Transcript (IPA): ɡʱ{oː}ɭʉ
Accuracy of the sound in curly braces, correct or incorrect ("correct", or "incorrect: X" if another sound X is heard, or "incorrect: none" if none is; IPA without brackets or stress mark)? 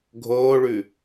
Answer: correct